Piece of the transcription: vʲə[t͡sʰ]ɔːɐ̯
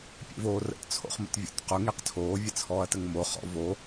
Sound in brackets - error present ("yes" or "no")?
no